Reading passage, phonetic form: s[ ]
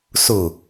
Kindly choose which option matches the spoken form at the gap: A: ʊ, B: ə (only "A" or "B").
A